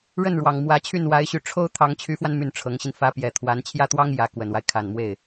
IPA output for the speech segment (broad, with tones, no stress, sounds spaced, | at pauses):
ɻ ə˥˩ n ɻ w ɑ˨˩ ŋ m w ä˧˥ t͡ɕʰ y˥˩ n w a˧˥ ɪ̯ ɕ y˧˥ ʈ͡ʂʰ o˥ ʊ̯ t̪ʰ ɑ˧˥ ŋ t͡ɕʰ y˧˥ f w a˧ n m y˥˩ n ʈ͡ʂʰ ɤ˧˥ ŋ ɕ i˧ n f ä˧˥ p j ɛ˨˩ t̪ʰ w a˧˥ n t͡ɕʰ j ä˥˩ t̪ w ɑ˥ ŋ j ä˧˥ k w ə˨˩ n w a˦ ɪ̯ kʰ a˨˩ n m w e˥˩ ɪ̯